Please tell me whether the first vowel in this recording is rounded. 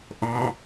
yes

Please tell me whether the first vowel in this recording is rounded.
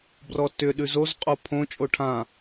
yes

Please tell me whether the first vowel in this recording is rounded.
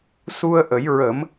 yes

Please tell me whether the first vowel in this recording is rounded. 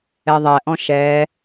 no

